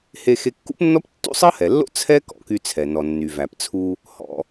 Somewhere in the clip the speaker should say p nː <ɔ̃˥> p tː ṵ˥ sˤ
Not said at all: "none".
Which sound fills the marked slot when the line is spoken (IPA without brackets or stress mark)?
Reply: ɔ˥